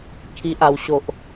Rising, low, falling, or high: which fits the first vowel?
low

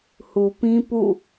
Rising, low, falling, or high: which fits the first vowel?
low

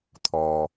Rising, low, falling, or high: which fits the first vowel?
low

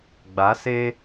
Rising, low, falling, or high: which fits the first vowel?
rising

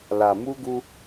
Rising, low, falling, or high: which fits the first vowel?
low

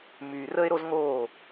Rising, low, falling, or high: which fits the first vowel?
low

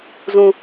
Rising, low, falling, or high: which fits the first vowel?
low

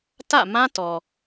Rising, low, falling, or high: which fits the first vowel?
falling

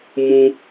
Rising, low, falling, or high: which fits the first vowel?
high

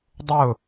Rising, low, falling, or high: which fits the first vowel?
falling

